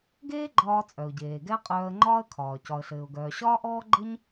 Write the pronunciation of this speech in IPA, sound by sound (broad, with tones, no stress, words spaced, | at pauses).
ɡeː˥ɡ͡ǃɒː˧t͡sʼœ˩ʊ̯ɟeː˩ ɡɛ˥qʼœː˧ə̯ŋ͡ǃɒː˥ə̯kʰɒː˩ cɒ˩ə̯ɬɘː˩ʊ̯ɡœː˩ ɕɒː˥ʔɔː˥ɡ͡ǃɘ˥ɲ